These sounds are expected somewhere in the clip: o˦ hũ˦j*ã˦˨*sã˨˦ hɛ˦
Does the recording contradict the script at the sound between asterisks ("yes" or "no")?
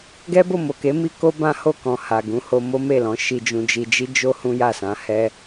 yes